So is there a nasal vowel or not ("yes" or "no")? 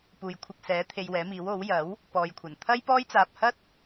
no